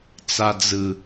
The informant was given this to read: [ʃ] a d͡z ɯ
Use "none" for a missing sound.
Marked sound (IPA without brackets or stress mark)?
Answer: t͡s